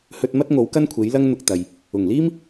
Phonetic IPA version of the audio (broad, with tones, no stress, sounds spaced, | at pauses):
h ɵ˧ t̚ m ɐ˥ t̚ ŋ o˨˥ w k ɐ˥ n kʷʰ e˨˥ j l ɐ˥ ŋ n̪ ʊ˧ k̚ t̪ ɐ˨ j | ʊ˨˩ ŋ l iː˥ m